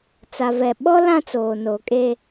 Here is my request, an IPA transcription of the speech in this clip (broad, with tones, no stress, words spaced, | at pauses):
t͡sa˨vɛ˨ ɓɔ˦ lã˦t͡soː˨no˨˦kʼe˦